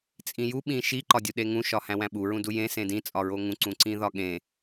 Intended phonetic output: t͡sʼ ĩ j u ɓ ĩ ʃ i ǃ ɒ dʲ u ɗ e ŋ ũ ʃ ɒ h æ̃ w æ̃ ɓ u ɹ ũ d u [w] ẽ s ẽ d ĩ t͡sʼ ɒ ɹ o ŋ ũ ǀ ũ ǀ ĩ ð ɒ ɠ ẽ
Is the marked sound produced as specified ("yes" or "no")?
no